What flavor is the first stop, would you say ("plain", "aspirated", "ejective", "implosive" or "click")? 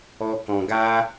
plain